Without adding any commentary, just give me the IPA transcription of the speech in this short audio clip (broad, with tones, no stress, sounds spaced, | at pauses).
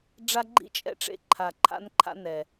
ɖ͡ʐ a˦ ɡ͡ǃ ḭ˦ t͡ʃʼ ɛ̰˦ ʈ͡ʂ ḛ˦ ǃʰ a˧ ǃʰ a̰˦ n ǃʰ a̰˦ n ɛ˧